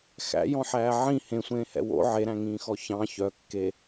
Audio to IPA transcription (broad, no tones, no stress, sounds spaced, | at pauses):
x æ̰ j ɔ̃ ħ æː ʕ ĩ h ẽ sʷ ẽː h ɛ̰ w o̰ ʕ e ɾ æ̃ ŋ ĩː x ɔ ç ɑ̃ ç œ kː e